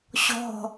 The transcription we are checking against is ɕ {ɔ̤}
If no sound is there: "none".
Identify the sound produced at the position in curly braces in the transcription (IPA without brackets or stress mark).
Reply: ɔ̤